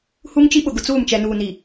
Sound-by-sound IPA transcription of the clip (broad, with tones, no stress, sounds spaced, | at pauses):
h u˦ ŋ t͡ʃ i˦ ɓ ʊ˨ ɡ ʊ˨ t͡s uː˦˨ m t͡ʃ ɛ˨ n uː˨ n i˨